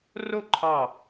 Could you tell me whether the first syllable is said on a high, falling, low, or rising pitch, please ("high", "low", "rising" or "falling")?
falling